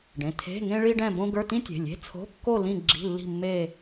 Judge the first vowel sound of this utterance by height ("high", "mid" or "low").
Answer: mid